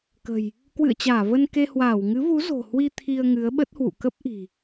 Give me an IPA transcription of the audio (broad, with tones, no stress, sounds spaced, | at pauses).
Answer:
k ə̤˨˩ j | k w ɨ̰˧˨ ə̯ t͡ɕ aː˧˩ v ə˧ n k e˧ h w aː˧˩ w ŋ ɨ˨˦ v u˨˦ z o̤˨˩ h w i˧ t̪ʰ i˧ ə̯ ŋ ɨ˨˦ ə̯ ɓ ə˦˥ t̚ h w ṵ˧˨ k ə˦˥ p̚ ʔ i̤˨˩